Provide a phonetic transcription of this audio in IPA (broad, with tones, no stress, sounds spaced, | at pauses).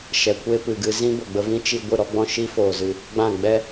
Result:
ʃ ɛ˨ kʷ e˦ p ɨ˨ ɡ ɨ˧ z ĩ˦ b ə˨ ɡ͡b ə˧ v ĩ˦ t͡ʃ i˧ ɡʷ ɨ˦˨ ɾ ɔ˦ ɡ͡b ɔ̃˦ ʃ i˦ f oː˨ z ɨ˨ | ɡ͡b ã˦˨ ɡ͡b ɛ˦